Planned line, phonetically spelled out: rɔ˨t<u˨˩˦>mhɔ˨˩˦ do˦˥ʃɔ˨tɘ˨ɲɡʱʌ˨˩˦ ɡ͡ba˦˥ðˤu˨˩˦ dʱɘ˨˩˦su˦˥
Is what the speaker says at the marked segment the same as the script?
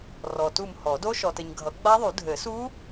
no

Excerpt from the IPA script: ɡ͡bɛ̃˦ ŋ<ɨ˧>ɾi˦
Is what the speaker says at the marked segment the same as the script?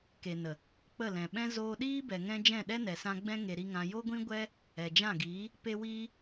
no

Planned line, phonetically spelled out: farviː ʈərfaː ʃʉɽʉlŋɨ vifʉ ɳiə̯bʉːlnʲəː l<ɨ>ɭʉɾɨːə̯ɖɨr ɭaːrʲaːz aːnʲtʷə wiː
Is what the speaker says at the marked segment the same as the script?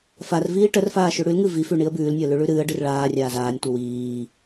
no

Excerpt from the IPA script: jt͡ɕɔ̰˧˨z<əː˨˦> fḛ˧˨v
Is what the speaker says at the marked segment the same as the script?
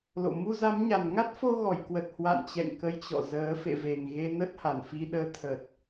yes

